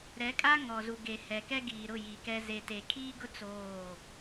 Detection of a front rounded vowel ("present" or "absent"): absent